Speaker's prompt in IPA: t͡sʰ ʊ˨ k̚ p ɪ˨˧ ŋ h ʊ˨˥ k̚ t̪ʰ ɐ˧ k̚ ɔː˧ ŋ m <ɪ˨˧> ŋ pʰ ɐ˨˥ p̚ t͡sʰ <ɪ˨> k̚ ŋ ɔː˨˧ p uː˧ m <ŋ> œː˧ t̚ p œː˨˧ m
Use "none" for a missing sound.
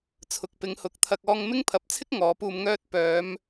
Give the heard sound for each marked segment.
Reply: ɪ˥, ɪ˥, ŋ

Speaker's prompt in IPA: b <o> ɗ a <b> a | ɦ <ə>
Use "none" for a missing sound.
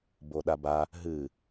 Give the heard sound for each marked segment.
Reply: o, b, ɨ

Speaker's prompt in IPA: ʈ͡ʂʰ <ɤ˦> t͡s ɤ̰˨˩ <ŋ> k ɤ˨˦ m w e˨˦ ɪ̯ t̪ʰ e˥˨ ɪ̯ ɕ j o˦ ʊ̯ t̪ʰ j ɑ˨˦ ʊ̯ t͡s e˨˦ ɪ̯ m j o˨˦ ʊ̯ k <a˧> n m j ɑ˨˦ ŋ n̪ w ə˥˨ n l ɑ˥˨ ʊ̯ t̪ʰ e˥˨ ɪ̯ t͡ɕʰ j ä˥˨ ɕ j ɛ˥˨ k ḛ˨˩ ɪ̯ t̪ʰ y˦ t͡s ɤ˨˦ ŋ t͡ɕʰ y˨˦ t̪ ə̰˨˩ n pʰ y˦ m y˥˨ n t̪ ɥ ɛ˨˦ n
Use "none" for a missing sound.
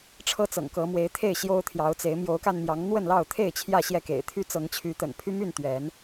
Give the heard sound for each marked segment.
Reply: ɤ˦, ŋ, a˧

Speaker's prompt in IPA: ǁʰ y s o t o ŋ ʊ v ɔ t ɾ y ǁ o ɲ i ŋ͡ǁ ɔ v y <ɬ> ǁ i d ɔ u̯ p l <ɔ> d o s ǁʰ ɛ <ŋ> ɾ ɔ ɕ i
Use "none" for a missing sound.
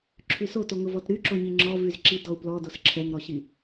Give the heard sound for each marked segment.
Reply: z, ɔ, ŋ

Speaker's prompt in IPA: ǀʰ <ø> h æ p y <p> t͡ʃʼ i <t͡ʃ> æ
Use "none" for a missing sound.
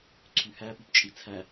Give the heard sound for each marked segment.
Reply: y, p, t͡sʰ

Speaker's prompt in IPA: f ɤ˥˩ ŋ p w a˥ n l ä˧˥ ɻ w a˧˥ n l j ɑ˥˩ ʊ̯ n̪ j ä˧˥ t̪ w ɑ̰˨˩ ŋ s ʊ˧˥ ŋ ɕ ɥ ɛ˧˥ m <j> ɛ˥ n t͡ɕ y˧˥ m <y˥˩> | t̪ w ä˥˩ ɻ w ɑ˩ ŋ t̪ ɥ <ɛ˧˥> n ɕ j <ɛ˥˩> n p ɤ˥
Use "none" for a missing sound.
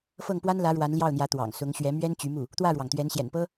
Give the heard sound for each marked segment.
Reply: ɥ, u˥˩, ɛ˧˥, ɛ̰˨˩

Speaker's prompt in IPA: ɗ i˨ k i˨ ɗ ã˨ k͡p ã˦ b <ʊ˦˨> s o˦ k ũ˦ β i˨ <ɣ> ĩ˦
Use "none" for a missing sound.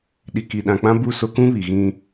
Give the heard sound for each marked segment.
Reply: u˦˨, ɣ

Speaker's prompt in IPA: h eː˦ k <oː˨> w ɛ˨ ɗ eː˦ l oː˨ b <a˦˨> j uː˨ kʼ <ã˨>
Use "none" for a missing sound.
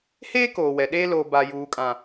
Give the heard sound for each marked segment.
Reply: oː˨, a˨, ã˨

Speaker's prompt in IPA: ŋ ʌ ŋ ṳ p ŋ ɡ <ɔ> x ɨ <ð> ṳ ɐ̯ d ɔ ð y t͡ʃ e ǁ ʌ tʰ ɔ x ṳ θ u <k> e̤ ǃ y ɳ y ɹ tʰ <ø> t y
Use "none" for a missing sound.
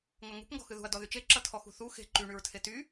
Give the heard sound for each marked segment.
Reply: ɔ̤, ð, x, e

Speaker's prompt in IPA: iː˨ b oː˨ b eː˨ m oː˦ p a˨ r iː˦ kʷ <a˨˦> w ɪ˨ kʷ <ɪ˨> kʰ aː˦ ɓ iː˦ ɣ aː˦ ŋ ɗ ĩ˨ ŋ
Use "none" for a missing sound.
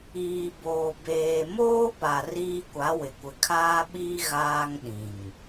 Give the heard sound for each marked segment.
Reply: a˨˦, ɪ˨

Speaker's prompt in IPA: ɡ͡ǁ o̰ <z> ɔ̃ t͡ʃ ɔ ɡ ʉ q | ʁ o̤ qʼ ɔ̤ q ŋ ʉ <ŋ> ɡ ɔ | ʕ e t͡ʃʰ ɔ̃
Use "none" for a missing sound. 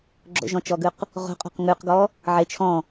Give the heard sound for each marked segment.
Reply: ʒ, q

